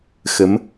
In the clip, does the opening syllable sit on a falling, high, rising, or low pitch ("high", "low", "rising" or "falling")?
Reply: rising